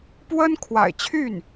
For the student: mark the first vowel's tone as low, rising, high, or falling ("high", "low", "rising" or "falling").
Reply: high